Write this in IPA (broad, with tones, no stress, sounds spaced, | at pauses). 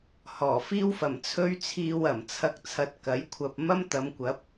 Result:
h ɔː˨˩ f iː˥ w f ɐ˨˩ m t͡sʰ ɵ˥ ɥ t͡sʰ iː˧ w ɐ˨˩ m t͡sʰ ɐ˧ k̚ t͡sʰ ɐ˨˥ t̚ k ɐ˨˥ j kʷʰ ɐ˧ p̚ m ɐ˥ m t̪ ɐ˨˧ m kʷ ɐ˨˥ p̚